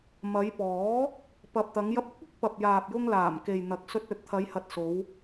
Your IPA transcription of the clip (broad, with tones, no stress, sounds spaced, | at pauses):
m ɐ˨˧ j p ɔː˨˥ | p ɐ˨ p̚ t̪ ɐ˨˧ ŋ j ɐ˧ p̚ ʊ˨˥ k̚ ɪ˧ k̚ p ɐ˨ p̚ j aː˨ p̚ j ʊ˧ ŋ l aː˨˩ m k e˨ j n̪ ɐ˨˥ k̚ s ɵ˧ t̚ ɵ˨ t̚ t̪ʰ ɐ˨˧ j h ɐ˨ t̚ s o˨˧ w